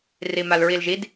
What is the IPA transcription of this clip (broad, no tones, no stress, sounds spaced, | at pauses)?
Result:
r i m a l ɹ i l ʒ i d